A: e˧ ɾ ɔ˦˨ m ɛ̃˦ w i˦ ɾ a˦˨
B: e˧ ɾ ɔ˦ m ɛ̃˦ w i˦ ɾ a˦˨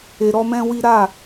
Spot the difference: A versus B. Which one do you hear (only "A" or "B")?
B